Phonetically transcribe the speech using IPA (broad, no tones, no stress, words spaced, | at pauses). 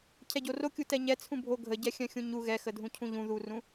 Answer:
cʰɛɟorokʲu tɛɲɛ t͡sʰũbʱo ɡʱəɟɛxʲœ̃ xʲũɲu ɣɛxədʱũ cʰũʎũ ðurũ